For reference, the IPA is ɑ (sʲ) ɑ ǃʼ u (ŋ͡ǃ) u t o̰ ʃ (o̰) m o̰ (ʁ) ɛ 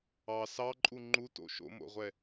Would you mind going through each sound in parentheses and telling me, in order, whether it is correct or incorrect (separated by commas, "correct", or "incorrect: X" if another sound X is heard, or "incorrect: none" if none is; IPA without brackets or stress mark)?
incorrect: s, correct, correct, incorrect: ʁʷ